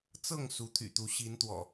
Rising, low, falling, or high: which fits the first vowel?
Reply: falling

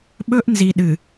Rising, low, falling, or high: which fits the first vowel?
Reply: high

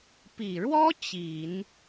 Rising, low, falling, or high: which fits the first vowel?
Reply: low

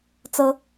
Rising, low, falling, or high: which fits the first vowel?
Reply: high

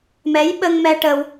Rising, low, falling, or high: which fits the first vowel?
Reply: rising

